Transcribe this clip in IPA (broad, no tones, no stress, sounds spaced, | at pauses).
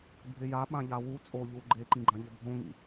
bʱ ɪ j a ɓ ã ʎ a w u t͡sʼ o ʎ u ɡ͡ǃ e ǃ ĩ ɡ͡ǃ ã ʎ ʊ bʱ õ ŋ ḭ